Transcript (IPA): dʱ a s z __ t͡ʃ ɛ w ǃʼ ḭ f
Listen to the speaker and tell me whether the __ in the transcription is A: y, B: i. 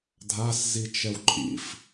B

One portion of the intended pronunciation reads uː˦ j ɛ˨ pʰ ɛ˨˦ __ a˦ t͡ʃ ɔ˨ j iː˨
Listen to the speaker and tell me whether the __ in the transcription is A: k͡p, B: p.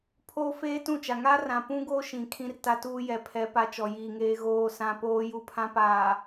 B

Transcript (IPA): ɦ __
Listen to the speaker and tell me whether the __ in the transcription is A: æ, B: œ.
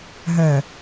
B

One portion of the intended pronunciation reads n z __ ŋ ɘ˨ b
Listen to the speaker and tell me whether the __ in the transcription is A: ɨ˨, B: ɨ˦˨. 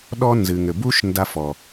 A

